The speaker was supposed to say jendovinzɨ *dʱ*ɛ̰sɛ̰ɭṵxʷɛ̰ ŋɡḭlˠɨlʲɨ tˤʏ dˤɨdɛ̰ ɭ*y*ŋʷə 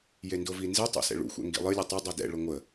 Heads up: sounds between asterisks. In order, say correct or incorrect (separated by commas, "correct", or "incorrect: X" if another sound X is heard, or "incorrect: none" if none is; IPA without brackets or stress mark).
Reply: incorrect: tˤ, incorrect: ʏ